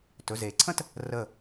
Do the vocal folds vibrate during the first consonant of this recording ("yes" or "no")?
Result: no